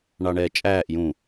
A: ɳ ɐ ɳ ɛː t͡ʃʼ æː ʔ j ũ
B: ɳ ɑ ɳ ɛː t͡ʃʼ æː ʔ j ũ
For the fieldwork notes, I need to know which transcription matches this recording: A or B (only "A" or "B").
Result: B